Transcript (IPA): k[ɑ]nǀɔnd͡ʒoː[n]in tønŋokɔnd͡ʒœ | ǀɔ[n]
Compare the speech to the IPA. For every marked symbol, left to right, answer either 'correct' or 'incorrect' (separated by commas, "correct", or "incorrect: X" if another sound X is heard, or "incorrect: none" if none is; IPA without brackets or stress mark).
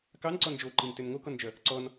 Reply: correct, incorrect: ǃ, correct